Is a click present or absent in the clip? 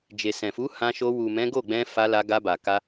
absent